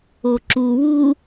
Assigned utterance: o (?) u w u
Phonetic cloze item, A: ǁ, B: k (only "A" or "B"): A